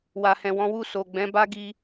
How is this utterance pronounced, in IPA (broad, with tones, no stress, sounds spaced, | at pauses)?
w a˨ h ɛ̃˨ w ɔ̃˨˦ w u˦˨ s o˨ ɡ͡b ɛ̃˨˦ b a˦ ɡ i˧